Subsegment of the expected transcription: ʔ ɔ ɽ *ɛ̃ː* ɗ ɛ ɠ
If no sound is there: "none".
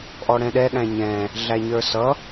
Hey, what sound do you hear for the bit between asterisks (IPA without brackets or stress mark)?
ɛ̃